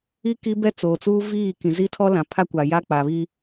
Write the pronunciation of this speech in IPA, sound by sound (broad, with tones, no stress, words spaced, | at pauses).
i˦ ki˦bɛ˦t͡soː˨t͡suː˦ viː˦˨ kĩ˨zi˦tʰɔ˦ lã˨ pʰa˦kʷa˨ ja˦k͡pa˨βi˦